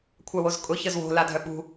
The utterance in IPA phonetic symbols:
kʷʰawozkʼʊ çəzwo̤ ladʱœɓṳ

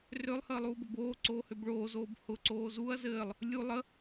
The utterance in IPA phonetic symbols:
rølˠhəːlˠuːbə boːǀoːhøb ɭoːzoːb hʊǀoː zuɐ̯ zɘːlˠ | lʲu lˠə

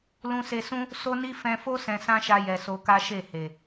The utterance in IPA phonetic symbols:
lũ˧se˧sũ˦ | so˦ni˦ fɛ̃˧fo˦ sɛ̃˧sã˦ʃa˧ jɛ˨so˧ka˦ ʃe˦˨ he˨

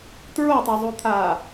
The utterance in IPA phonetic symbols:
tɹotˤozˤut̪ʰaː

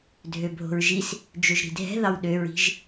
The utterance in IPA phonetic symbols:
dʱøbʱo̤ɹʒis | d͡ʒøʒɾi̤dʱɛ̤ðɑw ɗøɹi̤ʒ

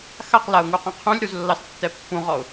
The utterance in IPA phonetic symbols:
xaqlaʊ̯ŋuqũ qʰũlʲɾuzlːɑstːɛ pːũʁɔʊ̯

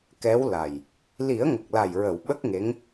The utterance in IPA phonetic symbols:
kɛ˧˥w la˨˩j | li˨˩˦ə̯ŋə˨˩k̚la˨˩j ɹə˨˩˨w ɓə˦˥k̚ŋe˧˥ŋ

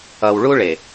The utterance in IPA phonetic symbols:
ʌ˨wɭu˦ɭe˨

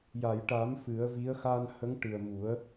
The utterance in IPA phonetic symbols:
ja˨˩˨jʈa˨˩˦m fɨ˨˩˦ə̯vi˧˥ə̯ xa˧nhə˧˥ŋ ʈɨ˨˩ə̯ mu˨˩˦ə̯

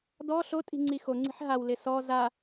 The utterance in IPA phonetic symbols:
dɔ ɬotʼi̤ ŋ͡ǀixoŋ͡ǀi̤ħ ɦawlɪ sɔ za

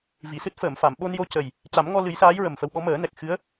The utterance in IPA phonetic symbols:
vi˨˩˨sɨ˦˥t̚fəː˨˩˨mfa˨˩˨m ɓo˧njo˧ cə˨˩j | ca˨˩˦mŋɔ˧ lɨ˨˩˦jsaː˧˥j ɹə˨˩mfə˧wɓɔ˧˥ məː˨˩˦nɛ˨˩k̚ xɨ˧˥ə̯

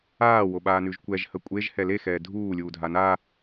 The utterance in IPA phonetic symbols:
aːwoɓaːnʉʒ kʷɛʒhə kʷʼeʒhɛ lexɛː dʱuːlʲuːdʱa na

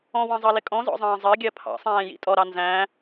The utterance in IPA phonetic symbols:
ɔ̃wɑ̃zˤɑlɪ kʼɔ̃zɔ̰zˤɑ̃ː zˤɜɡʲɜ pʰɑ̰sˤæ̃ːjḭ tʼɔɾɑ nzæ̃

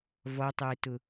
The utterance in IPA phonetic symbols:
vɔtˤɪːtʊ

